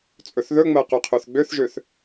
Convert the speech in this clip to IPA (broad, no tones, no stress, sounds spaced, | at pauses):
t͡sʼ ɵ θ ð ɵ ŋ͡m ɜ q ø qʰ ø θ ɡ͡b ø θ ʒ ø θ